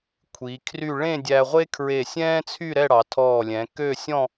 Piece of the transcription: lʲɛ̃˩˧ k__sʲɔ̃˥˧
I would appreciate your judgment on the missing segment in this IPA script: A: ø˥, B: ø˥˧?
B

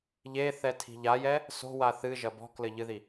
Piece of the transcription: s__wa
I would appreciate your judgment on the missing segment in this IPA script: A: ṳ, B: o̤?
B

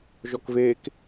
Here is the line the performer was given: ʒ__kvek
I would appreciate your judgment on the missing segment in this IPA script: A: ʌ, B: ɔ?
B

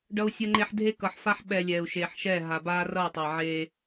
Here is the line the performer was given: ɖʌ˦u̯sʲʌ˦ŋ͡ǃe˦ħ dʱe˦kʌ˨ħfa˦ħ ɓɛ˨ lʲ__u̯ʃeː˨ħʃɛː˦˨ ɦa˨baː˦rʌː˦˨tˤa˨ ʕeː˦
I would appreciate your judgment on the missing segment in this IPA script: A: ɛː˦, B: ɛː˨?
B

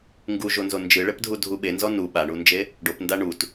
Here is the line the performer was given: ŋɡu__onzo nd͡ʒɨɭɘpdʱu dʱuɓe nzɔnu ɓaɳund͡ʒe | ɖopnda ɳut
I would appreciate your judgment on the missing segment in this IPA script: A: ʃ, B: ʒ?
B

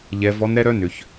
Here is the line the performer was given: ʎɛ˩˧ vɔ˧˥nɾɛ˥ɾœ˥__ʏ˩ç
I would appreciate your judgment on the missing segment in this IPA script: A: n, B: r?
A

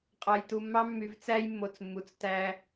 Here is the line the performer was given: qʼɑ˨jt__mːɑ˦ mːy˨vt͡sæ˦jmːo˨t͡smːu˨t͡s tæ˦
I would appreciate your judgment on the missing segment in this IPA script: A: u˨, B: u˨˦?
A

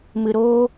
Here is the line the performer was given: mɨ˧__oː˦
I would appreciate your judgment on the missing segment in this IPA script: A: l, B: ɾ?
B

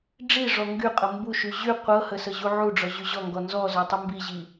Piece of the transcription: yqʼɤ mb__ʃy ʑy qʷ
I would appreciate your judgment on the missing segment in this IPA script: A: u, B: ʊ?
A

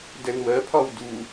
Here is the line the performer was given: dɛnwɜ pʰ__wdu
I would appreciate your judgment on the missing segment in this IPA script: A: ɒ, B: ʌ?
A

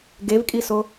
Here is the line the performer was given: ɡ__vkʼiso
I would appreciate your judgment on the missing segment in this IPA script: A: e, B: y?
A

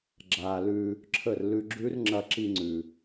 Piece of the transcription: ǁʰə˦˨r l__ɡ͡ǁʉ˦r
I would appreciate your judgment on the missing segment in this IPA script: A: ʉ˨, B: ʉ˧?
B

